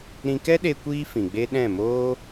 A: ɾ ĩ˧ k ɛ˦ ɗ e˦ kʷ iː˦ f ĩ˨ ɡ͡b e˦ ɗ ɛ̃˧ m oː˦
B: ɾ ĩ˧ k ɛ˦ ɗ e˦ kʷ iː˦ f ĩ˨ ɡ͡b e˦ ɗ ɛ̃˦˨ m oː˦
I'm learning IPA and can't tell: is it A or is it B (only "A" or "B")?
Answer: B